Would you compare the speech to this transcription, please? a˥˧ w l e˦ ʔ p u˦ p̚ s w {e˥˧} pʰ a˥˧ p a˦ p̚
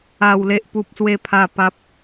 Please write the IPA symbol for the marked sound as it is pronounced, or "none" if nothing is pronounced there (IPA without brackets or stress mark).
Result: e˥˧